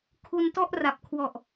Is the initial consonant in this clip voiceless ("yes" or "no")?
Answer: yes